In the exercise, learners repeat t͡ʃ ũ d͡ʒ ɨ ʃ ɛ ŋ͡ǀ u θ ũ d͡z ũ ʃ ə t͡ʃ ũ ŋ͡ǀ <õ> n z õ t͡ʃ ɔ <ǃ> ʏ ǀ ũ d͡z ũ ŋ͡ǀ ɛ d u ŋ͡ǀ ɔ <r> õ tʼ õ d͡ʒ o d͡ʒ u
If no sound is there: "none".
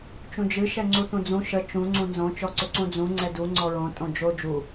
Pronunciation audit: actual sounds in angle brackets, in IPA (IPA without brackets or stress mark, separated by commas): ũ, ǀ, ɹ